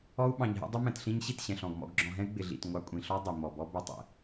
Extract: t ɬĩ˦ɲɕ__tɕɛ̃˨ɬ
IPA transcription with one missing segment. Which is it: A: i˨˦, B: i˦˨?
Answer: B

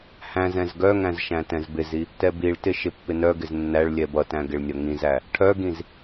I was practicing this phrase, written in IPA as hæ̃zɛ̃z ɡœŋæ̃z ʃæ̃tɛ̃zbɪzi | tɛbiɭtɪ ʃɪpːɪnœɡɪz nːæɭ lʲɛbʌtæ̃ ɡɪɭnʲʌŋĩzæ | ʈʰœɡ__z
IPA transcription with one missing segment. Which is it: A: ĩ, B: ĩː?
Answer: A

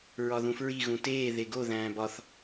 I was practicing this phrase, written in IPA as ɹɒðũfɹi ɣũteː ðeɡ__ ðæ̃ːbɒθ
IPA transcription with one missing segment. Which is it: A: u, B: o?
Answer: B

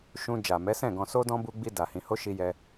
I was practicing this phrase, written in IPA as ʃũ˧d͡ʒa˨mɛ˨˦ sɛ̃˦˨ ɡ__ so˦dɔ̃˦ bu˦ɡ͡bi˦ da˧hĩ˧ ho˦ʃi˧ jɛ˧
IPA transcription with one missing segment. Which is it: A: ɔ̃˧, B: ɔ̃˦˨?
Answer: A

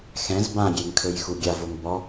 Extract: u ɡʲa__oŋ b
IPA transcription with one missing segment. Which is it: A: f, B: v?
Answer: B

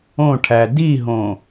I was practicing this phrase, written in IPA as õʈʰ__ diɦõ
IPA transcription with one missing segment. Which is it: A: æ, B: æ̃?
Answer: A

